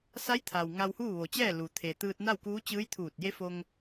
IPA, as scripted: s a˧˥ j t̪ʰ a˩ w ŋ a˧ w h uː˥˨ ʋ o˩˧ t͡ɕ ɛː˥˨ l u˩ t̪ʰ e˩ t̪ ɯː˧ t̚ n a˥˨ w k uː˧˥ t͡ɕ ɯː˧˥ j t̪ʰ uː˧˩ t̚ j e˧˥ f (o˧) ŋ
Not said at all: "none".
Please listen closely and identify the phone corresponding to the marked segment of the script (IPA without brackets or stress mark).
o˧